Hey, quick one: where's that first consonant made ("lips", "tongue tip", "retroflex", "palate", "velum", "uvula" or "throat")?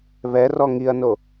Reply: lips